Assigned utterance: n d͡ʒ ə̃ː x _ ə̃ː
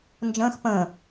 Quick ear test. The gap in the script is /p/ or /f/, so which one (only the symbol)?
p